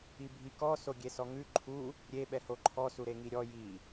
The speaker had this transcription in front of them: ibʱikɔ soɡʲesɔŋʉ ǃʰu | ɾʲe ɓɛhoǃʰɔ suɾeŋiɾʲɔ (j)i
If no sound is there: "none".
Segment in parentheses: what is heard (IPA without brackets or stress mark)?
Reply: j